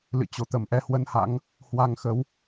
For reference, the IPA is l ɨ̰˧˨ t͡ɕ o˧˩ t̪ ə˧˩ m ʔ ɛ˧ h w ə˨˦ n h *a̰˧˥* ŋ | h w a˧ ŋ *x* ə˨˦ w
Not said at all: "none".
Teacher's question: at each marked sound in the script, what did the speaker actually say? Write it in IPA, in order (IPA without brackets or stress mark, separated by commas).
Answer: a̰˧˥, x